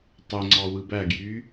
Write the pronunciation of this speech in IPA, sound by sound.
tˤ ø ŋ͡ǀ ɑ w ɯ b æ ɡ j y

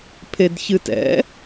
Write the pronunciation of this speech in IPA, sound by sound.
pʰ e d ç ɨ t ɛ̰

